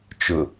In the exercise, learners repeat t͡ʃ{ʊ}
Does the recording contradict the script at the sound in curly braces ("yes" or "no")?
no